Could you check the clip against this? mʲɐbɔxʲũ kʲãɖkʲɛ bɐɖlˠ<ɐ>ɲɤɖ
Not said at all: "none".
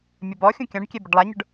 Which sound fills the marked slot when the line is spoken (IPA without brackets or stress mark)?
a